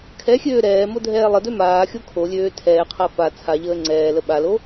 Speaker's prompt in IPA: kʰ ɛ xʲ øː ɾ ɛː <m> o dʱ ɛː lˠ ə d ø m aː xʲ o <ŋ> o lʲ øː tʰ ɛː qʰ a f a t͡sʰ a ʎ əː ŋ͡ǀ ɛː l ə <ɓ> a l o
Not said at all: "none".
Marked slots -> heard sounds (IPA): m, kʰ, ɓ

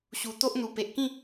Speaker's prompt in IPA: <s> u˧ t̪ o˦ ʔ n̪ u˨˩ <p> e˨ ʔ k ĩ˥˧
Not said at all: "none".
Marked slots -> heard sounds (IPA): ɕ, p

